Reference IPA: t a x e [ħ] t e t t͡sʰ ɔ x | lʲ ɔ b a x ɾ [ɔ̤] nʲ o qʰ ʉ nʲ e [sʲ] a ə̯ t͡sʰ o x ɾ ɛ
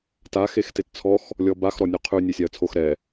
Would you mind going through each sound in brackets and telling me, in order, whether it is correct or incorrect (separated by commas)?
incorrect, incorrect, correct